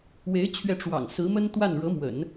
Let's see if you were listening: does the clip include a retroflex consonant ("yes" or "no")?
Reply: yes